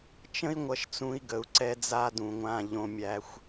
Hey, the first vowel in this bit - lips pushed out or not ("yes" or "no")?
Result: no